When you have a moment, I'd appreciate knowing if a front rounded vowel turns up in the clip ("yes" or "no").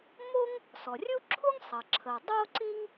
no